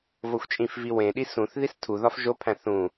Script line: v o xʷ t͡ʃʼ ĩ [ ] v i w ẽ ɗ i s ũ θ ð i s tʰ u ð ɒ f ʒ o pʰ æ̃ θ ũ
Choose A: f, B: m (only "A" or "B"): A